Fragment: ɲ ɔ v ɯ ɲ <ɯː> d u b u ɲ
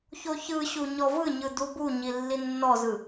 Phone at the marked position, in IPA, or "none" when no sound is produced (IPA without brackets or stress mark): ɯ